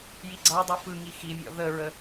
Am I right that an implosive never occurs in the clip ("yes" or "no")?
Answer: yes